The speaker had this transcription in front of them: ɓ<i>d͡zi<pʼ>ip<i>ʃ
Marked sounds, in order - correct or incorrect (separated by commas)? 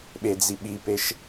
incorrect, incorrect, incorrect